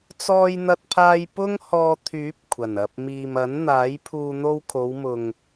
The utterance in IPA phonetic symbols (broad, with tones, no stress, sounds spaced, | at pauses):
t͡s ɔː˧ j n̪ ɐ˧ t̚ pʰ aː˧ j p ʊ˥ ŋ h ɔː˧ t̪ʰ yː˨˥ p̚ kʷʰ ɐ˨˩ n ɐ˨ p̚ m iː˨ m ɐ˨˥ n n̪ aː˨˥ j pʰ uː˧ n̪ o˧ w kʰ o˨˧ w m ʊ˨ ŋ